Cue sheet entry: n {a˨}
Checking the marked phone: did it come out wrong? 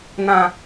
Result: yes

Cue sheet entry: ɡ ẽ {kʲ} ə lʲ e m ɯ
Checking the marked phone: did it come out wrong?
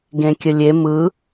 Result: no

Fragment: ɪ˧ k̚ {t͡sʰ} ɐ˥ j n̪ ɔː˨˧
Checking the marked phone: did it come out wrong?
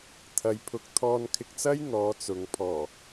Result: yes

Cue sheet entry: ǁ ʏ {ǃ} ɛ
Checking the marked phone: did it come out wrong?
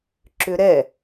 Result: yes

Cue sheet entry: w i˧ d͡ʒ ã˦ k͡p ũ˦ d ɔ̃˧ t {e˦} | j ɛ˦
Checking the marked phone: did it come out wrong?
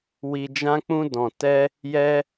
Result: yes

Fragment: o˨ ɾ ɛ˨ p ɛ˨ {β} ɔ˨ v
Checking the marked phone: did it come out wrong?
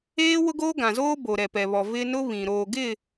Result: no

